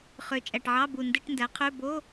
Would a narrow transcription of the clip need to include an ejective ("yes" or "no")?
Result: yes